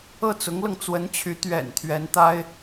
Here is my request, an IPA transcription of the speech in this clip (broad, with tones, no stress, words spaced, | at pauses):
ɤ˥˩t͡sʊ˧˥ŋlɤ˧ŋ t͡swə˧˥nt͡ɕʰy˧˥ t̪ɥɛ̰˨˩n t̪ʰɥɛ˧˥nt̪a˥ɪ̯